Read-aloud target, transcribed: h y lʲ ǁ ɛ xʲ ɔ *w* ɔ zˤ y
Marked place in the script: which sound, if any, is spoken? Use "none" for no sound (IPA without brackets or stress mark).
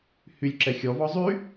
v